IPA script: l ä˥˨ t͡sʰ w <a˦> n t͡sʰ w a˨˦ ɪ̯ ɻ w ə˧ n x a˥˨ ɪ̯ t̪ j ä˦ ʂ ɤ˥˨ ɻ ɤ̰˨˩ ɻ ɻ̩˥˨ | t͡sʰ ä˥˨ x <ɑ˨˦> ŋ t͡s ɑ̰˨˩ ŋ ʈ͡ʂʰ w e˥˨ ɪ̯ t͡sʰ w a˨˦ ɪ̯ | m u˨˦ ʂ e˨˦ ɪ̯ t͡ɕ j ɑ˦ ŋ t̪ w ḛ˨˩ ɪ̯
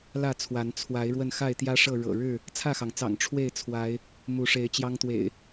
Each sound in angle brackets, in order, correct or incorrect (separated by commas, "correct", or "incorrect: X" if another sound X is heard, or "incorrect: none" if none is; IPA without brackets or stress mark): incorrect: a˨˦, incorrect: ɑ˩